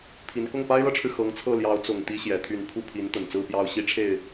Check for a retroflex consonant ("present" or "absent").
present